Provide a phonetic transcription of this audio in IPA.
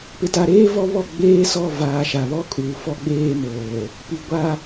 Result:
pɪ˨ta˨ɾeː˦ vɔ˦ βɔ˦˨ ɡ͡beː˦ sɔ˦˨vaː˨ ʃa˨βɔ˦kʼuː˨ fɔ˦ɡ͡beː˦moː˨ | pi˨ ɡʷa˦

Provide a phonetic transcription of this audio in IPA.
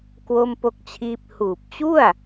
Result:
kwo˥˩mpo˥˩k̚t͡ɕʰiː˥˩p̚ huː˨˩p̚t͡ɕu˥˩a̯

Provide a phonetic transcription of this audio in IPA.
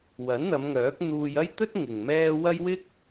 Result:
wɐ˨˥n n̪ɐ˨˧mŋœː˨˥k̚n̪uː˧j ɐ˥jt̪ɵ˥t̚ ŋɪ˨ŋmɛː˥ wɐ˥j wɪ˥k̚

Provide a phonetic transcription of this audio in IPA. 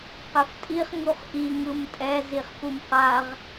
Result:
qɛftʼiχ ŋuχʔi ŋɯmtʼɛ ziχpumqaʁ

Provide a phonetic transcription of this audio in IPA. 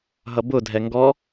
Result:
ɦʌbʊ dʱɛŋɡɔ

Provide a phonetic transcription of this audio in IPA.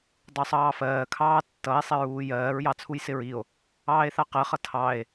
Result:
dˤusˤɑːfɜːkʰɑː tːʌe̯sˤɪ ɹuːjɜːɹjɑ t͡sʰujsɪɹio̯ | ɑːe̯θɑqɜχʌ tʰɑe̯

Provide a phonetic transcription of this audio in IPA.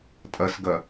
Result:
tʼɐsɡɐ

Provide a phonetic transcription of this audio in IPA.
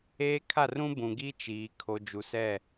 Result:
eː˦kʰa˦˨rũ˦ bũ˨ɡi˦t͡ʃiː˨ kʰo˨ d͡ʒu˨sɛ˦˨

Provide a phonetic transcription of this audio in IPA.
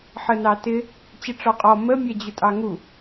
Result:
ħənɑtɪ | t͡ɕɪʈ͡ʂɔqʼɔ mə mʲɛd͡ʑʊtʼɑŋu

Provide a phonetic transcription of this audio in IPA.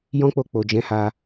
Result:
jɔ̃˦k͡po˧k͡po˨ d͡ʒɛ̃˨˦ha˧

